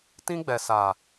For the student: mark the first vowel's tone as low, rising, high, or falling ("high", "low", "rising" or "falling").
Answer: high